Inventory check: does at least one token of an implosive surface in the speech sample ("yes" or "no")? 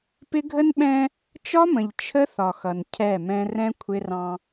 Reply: yes